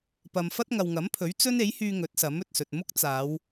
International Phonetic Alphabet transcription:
pɐ˨m fɐ˥t̚ŋɐ˨wŋɐ˨˥mpʰɵ˨˥ɥ t͡sɵ˥ne˨˥jhyː˧ ŋɵ˨˥t̚sɐ˨˥mɵ˨t̚sɵ˨t̚ mʊ˥k̚t͡saː˨˧w

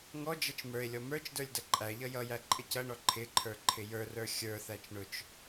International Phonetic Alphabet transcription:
ŋɔd͡ʒʌt͡ʃ mə˞e̯lʲɔ mə˞t͡ʃ də˞lʲdʌǃʼæʎʌ jʌjæ ǃʼɪcʌɳɔ ǃʰɪǃʰə˞ ǃʰɪjə˞rə˞ xʲə˞θæt͡ʃ ɳʊt͡ʃ

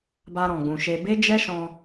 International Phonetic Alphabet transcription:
ba˧ɾɔ̃˨ɡ͡bũ˨ʃe˧ be˦d͡ʒɛ˦ʃɔ̃˧

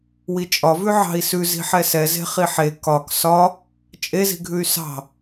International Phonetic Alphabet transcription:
wit͡ʃʼɒvʉ ʕɑ̤i̯sʉ zi̤ħɛsɛ ze̤χiħe kɒk sɒ | t͡ʃʼezi̤ɡʱʉy̯ sɑ̤

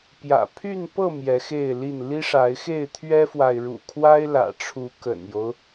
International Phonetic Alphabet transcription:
pjä̰˨˩pʰy˥˨npɤ˥˨ mjɛ˨˦xe˥˨ɪ̯li˥˨n li˦ʂa˨˦ɪ̯xe˥˨ɪ̯ t̪ʰɥɛ˦fwa˨ɪ̯ɻṵ˨˩ kʰwa˦ɪ̯lä̰˨˩ʈ͡ʂʰu˨˦ kə̰˨˩njo˦ʊ̯

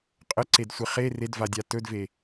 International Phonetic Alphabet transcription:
qʼəǀedsʷe χe redvadʲa tɵdve

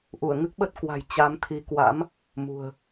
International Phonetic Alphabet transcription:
ʔu˧˩ə̯ŋɨ˦˥k̚ɓə˦˥t̚kwa̤˨˩j t͡ɕa˨˦mt̪ʰi˨˦kwa̰˧˥m | mṳ˨˩ə̯

